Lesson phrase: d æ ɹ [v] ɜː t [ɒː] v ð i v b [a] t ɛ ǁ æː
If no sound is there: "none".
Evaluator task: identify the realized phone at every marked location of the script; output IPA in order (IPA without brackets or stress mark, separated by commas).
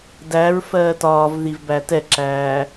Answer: f, ɒː, æ